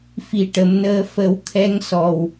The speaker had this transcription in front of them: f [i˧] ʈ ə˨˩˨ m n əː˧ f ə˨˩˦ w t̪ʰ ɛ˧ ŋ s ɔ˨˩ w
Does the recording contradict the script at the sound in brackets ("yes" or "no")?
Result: yes